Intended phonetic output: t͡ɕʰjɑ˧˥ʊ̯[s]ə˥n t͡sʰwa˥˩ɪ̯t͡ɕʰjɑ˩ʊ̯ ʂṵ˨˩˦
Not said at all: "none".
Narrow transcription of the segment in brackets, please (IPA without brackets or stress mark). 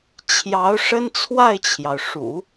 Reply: ʂ